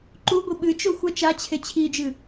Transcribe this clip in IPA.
ǃ u ɡʷ i ɓ ɨ t͡ʃ o xʷ ɐ t͡ʃ a t͡ɕʰ e t͡ɕʰ i d͡ʒ ɨ

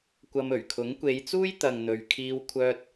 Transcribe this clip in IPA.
kʷ ɐ˧ m ɵ˨˩ ɥ kʰ ʊ˨˥ ŋ kʷ e˨˧ j t͡s uː˥ j t̪ ɐ˨ ŋ n̪ ɵ˨ ɥ kʰ iː˧ w kʷʰ œː˧ t̚

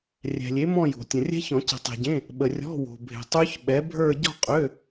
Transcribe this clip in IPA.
rʲ ɛ̤˨ lʲ e˨˥ m ɔ̃˥˧ j o̤˨ tʲ ə̃˨ rʲ ɛ̤˦˥ ç ɔ̃˨˩˦ c ə̤˨˩˦ tˤ e̤˨ ɟ ẽ˧˥˧ | ɓ ə˨ rʲ ɔ̤˧˥˧ w o̤˨ bʱ e̤˨ tˤ ø˦˥ ç ɓ ɛ˨˥ bʱ ə˞˥˧ ɟ ɔ̤˥˧ qʼ ø˧˥˧

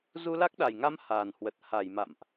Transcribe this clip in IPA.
z u˧ l a˦˥ k̚ ɗ a˨˩ j ŋ a˧ m h aː˨˩ n h w ə˨˩ t̚ h a˧˩ j m a̰˧˨ m ʔ

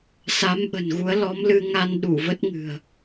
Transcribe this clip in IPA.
s a˨˦ m ɓ ə̤˨˩ n ɣ u˨˦ ə̯ l ɔ˨˦ m l ɨ˧ ŋ a˧ n ɗ u˧˩ v ə˦˥ t̚ ŋ ɨ̤˨˩ ə̯

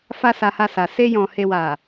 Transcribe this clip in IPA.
f a˦ s a˧ h a˧ s a˨ s e˧ j ɔ̃˨ h e˨ w a˨

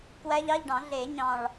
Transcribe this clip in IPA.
k w æ˦˥ ʎ ɑ˧˥˧ ʎ ɖ ɑ̃˨˩˦ ɮ e˨˩˦ ɲ ɑ̃˨˩ ɭ

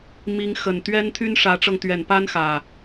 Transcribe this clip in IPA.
m i˨˦ ŋ x ə˨˩ n t̪ ɥ ɛ˦ n t̪ʰ y˦ n ʂ ä˨˦ ʈ͡ʂ ɤ˧ ŋ t̪ ɥ ɛ˨˩ n p a˦ n x ä˨˩

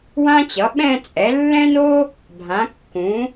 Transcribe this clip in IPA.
w ã˥ t͡ɕ ʌ˩˥ ɓ ɛ̃˥˧ t͡sʼ ɛ˩˥ lː ɛ̃˥ n o˥ | bʱ ã˩˥ kː ũ˩˥

